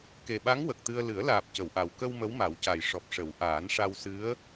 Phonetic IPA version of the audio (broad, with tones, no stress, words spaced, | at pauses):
ke˨˩ɓa˧˥ŋ wə˨˩k̚t̪ɨ˧ə̯ lɨ˨˩˦ə̯laː˨˩p̚ cə˨˩˨wʔa˨˩w kə˧w mə˧˥wma˨˩˦wca˨˩j ʂɔ˨˩p̚ʂə˨˩˦w ʔaː˨˩˦nʂa˧wsɨ˧˥ə̯